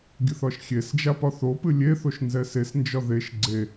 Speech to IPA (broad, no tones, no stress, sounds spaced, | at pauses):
ɡʲ ɨ θ ɒ ʃ xʲ e s d͡ʒ a p ɒ θ o p ɨ lʲ e θ o ʃ n z ɛ s e s n d͡ʒ ɒ ð e ʃ ɡ͡ǀ e